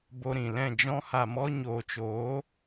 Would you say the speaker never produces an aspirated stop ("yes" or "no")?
yes